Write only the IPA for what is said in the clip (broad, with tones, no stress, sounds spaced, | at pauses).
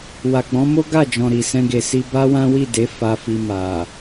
w a˨ ɡ͡b ɔ̃˨˦ m o˦ ɡ a˦˨ d͡ʒ ɔ̃˨ ɾ i˨ s ɛ̃˧ ɡ e˨ s i˧ b a˦ w ã˦ w i˦˨ d e˨˦ f a˧ f i˧ m a˨